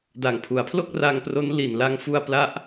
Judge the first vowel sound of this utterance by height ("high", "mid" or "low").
low